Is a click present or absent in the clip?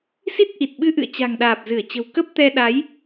absent